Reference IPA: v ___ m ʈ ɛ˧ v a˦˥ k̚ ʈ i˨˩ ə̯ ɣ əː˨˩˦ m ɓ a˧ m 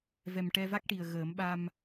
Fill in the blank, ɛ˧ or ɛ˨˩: ɛ˨˩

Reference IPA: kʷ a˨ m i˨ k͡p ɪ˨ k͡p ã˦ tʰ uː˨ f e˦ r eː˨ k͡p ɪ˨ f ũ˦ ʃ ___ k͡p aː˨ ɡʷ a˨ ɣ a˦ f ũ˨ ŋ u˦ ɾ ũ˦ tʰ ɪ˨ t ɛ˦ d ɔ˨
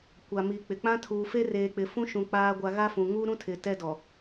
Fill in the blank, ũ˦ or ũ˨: ũ˨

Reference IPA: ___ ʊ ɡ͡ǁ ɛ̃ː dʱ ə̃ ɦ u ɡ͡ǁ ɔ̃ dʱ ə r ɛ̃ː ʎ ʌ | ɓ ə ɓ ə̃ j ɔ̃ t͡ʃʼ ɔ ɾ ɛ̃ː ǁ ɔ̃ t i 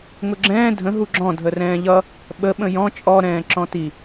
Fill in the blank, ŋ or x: ŋ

